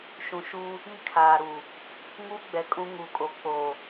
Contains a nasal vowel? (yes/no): yes